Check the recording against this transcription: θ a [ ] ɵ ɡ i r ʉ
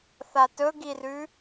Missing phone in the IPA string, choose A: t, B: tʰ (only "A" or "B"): A